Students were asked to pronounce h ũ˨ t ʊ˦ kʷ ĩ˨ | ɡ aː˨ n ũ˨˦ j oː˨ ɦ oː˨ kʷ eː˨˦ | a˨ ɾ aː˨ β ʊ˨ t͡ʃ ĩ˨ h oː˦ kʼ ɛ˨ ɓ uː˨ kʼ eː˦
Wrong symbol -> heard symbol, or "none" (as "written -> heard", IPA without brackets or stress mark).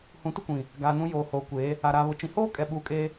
ɦ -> h